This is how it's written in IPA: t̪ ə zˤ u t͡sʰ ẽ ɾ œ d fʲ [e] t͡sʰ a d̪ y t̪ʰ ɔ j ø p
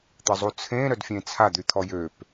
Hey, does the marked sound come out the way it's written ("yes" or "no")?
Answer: no